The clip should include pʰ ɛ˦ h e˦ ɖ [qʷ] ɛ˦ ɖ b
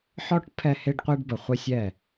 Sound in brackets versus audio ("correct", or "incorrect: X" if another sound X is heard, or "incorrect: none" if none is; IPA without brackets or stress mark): correct